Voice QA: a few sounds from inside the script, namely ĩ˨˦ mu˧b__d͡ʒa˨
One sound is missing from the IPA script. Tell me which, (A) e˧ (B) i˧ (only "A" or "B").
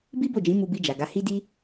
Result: B